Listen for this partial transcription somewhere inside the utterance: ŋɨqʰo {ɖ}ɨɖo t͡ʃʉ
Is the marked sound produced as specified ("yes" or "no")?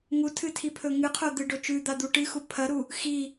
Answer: no